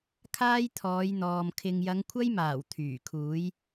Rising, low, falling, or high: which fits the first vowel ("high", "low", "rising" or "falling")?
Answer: high